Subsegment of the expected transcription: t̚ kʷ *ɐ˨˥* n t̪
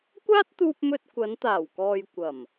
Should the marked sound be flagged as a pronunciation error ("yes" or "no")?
yes